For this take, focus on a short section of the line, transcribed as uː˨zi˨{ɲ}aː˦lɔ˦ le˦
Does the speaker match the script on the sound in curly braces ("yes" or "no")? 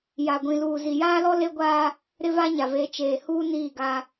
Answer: no